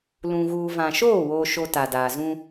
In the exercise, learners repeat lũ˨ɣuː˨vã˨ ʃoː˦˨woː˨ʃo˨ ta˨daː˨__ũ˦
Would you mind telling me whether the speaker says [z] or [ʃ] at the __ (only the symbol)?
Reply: z